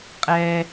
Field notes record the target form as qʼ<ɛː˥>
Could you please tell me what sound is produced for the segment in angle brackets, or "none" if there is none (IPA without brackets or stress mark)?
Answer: ɛː˥